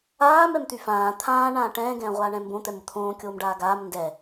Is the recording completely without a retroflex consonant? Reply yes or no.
no